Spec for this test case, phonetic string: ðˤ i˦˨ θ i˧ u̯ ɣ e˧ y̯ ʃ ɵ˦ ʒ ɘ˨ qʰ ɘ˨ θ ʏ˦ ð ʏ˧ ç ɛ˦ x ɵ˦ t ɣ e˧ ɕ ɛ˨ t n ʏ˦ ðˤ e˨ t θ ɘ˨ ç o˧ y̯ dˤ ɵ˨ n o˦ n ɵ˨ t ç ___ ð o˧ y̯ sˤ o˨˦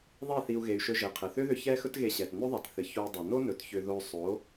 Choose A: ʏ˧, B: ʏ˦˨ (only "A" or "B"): A